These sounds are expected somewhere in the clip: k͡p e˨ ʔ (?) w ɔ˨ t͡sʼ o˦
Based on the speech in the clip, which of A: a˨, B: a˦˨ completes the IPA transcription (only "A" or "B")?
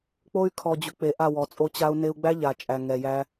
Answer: B